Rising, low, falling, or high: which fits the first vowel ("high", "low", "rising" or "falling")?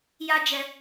high